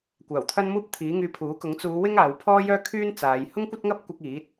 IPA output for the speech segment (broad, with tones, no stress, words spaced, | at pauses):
kʷaː˨˩wt̪ʰɐ˥nmuː˥p̚t̪ʰiː˨˥ ŋyː˧pʰuː˨˥kʊ˨˥ŋ t͡suː˨˧ wɪ˥ŋaː˨˧wpʰɔː˥jœː˥ kʰyː˥nt͡saː˨˧j hʊ˥ŋkʷɐ˥t̚ŋɐ˥p̚kʷɐ˧k̚ iː˨˥t̚